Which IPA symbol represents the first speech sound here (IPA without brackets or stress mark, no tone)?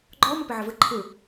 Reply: ɡ͡ǃ